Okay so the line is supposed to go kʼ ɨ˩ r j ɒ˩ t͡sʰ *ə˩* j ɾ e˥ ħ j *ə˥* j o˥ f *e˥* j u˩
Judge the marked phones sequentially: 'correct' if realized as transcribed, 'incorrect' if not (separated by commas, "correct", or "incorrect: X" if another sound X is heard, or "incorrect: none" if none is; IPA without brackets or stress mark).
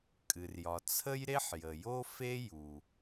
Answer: incorrect: ə˥, incorrect: ə˩, correct